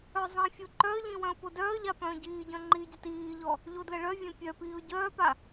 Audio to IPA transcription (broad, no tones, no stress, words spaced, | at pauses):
œzˤĩfʲo ǃœə̯ʎĩ wœ̃ʊ̯podœːə̯ʎa pœ̃ːɟiːɟœ̃ ŋ͡ǃiɟət iːʎɔ | ʎodləɭœvʲœ̃ pʲœpiːʊ̯ ɟœːpa